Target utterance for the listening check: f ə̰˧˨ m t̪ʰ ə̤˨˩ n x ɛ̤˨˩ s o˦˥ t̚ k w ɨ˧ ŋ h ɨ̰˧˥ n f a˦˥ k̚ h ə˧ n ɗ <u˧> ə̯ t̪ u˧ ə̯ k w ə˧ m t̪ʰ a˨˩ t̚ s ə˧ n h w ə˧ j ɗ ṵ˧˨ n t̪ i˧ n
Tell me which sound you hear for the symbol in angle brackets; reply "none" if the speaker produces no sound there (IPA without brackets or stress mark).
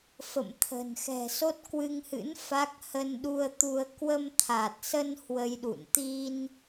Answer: u˧